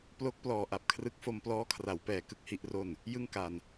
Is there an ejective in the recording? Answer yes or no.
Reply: no